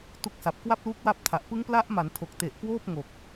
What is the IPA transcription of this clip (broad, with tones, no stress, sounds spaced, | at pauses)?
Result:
t u˦˥ k̚ s a˨˩ p̚ k w a˥˩ p̚ l uː˦˥ k̚ w a˦˥ p̚ tʰ a˨˩ ʔ p ɯ˦˥ ŋ p l a˦˥ ʔ m a˩˦ n tʰ o˨˩ k̚ t e˨˩ ʔ k w oː˥˩ p̚ ŋ o˨˩ k̚